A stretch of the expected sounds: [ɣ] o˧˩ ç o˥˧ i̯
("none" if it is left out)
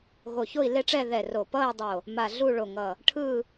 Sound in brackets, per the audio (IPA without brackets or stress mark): ɣ